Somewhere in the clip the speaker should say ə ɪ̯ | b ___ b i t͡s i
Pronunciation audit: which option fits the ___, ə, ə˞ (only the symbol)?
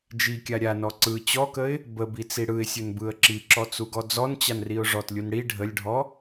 ə